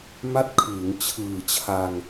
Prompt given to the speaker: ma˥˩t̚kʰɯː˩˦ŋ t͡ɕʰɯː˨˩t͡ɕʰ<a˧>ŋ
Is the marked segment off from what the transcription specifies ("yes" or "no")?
no